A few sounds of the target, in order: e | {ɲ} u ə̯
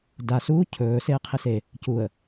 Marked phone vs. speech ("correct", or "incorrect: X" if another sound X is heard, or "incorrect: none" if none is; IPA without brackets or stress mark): incorrect: c